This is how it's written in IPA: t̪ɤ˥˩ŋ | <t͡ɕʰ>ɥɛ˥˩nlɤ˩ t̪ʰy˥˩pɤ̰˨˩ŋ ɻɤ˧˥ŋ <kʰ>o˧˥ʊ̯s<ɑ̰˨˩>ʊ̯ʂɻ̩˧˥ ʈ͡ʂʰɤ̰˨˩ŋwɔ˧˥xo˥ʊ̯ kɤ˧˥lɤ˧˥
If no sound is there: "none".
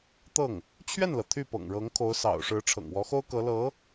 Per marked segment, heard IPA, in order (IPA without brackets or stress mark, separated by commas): t͡ɕʰ, kʰ, ɑ̰˨˩